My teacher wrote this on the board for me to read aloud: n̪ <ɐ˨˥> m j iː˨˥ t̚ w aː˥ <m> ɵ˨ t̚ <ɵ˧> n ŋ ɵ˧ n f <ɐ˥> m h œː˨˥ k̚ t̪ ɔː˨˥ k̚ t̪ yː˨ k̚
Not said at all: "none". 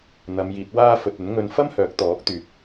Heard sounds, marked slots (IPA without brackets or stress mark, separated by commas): ɐ˨˧, f, ɵ˨˥, ɐ˥